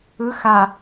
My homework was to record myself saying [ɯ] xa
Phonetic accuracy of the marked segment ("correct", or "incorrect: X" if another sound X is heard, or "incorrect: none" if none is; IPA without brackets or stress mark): correct